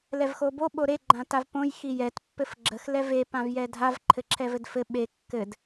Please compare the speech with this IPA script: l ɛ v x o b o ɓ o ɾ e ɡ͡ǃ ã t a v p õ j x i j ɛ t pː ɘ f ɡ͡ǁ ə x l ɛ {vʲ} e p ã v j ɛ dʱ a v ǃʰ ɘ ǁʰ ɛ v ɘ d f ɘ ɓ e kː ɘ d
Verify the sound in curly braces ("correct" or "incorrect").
incorrect